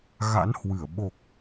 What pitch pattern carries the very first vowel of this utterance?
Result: rising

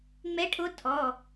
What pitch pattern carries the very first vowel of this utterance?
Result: rising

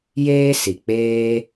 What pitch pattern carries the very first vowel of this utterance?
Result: high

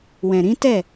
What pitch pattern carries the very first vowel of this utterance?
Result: low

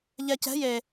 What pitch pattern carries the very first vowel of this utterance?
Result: low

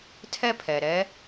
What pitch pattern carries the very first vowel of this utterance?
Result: high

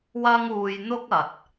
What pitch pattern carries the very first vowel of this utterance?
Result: high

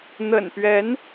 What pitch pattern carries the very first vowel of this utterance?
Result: low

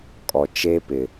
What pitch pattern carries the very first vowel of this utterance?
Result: low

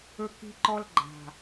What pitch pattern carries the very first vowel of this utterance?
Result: high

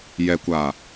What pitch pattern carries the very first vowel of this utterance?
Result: low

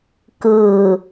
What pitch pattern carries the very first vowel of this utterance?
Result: low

